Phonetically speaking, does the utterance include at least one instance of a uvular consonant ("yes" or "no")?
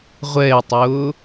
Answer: yes